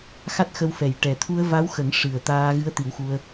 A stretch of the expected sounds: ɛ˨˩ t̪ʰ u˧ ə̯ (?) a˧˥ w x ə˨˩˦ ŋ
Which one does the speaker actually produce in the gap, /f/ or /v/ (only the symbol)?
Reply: v